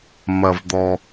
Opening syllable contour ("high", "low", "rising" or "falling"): low